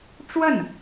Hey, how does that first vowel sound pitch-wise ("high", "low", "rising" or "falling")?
falling